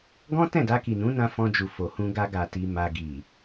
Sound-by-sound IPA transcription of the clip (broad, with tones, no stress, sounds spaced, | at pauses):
ɡ ɔ̃˦ t ɛ̃˦˨ d a˧ k i˨ n ũ˨˦ n ã˧ f ɔ̃˧ d͡ʒ u˨ f o˨ h ũ˧ ɡ a˧ ɡ a˨ t i˨ m a˨ ɡ i˨